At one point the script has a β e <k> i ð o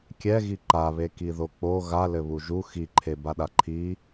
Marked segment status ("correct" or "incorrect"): correct